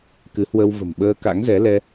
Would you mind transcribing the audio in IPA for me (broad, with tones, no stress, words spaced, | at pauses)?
kɨ˨˦hwə˧wvə̤˨˩m ɓəː˧ka̰˧˥ŋzɛ˨˦lɛ˧